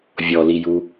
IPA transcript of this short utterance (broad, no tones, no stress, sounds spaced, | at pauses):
vʲ ɔ l i j u